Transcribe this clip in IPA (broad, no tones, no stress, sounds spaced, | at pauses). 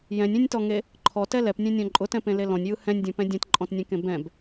j ɛ̃ nʲ ẽ nʲ t ɔ ŋ e | ǃʰ ɔ t ɛ l ɛ p nʲ ɛ̃ nʲ ɔ̃ ǃʼ ʊ t ɛ̃ p ẽ l e l ɔ̃ nʲ j ɯ h ɛ̃ nʲ dʲ ɔ̃ p ɛ̃ dʲ ɛ̃ t ǃʼ ɔ̃ t nʲ ɛ̃ k ẽ b ɛ̃ b